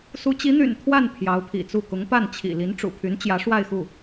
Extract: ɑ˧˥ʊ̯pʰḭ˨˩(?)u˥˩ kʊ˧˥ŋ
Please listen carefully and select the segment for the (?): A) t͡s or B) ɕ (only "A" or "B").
A